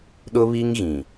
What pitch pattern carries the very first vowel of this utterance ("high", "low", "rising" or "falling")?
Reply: high